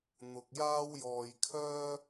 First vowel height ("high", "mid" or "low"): high